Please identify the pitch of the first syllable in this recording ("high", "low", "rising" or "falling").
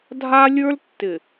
high